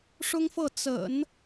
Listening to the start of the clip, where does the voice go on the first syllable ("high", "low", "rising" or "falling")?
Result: high